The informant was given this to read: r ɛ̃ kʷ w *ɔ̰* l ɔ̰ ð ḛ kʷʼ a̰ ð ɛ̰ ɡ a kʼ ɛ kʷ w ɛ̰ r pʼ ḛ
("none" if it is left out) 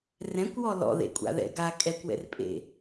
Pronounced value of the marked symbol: ɔ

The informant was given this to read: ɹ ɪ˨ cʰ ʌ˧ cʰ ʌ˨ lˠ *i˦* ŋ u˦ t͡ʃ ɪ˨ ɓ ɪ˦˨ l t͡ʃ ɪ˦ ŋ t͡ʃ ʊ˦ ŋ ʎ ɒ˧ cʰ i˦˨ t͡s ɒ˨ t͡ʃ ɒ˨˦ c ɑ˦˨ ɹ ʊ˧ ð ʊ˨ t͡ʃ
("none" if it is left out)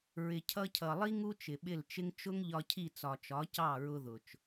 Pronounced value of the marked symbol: i˦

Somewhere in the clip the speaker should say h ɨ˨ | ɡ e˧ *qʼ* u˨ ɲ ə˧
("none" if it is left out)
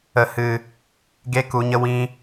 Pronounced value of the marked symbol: k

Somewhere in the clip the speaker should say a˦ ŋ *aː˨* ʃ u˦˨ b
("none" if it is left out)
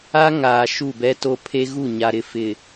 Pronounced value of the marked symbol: aː˨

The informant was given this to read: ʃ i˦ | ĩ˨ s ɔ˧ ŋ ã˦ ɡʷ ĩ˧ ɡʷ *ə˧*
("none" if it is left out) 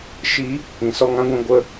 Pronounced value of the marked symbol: ə˧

